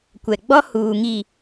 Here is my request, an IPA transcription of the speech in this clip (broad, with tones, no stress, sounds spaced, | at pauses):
kʷ ɛ˨ ɡ͡b ɔ˦ h uː˨ ŋ i˨